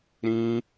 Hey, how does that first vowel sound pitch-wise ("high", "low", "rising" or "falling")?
high